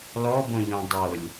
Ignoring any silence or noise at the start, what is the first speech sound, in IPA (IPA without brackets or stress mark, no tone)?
l